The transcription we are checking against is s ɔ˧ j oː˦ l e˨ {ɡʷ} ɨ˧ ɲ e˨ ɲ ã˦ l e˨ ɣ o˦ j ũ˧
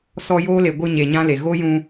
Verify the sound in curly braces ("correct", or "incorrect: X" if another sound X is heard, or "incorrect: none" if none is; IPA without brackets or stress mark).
correct